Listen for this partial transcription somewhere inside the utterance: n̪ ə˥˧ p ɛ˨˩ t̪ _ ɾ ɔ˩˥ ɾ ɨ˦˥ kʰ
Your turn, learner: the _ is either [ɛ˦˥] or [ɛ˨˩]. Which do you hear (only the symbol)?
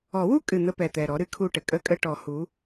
ɛ˨˩